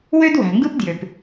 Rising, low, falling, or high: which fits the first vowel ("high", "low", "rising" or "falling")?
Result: high